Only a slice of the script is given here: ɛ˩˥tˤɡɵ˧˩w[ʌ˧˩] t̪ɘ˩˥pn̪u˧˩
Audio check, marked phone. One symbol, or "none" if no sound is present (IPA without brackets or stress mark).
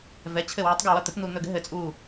ʌ˧˩